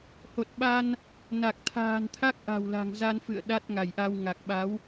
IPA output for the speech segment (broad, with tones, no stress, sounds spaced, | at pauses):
h o˨˩ t̚ ɓ a˧ n | n a˨˩ k̚ t̪ʰ a̤ː˨˩ n t̪ʰ a˦˥ k̚ ʔ a̤˨˩ w l a̤˨˩ ŋ z a˧ n f ɨ̰˧˨ ə̯ ɗ a˦˥ t̚ ŋ a˧˩ j ʔ a˧ w ŋ a˨˩ k̚ ɓ a˨˦ w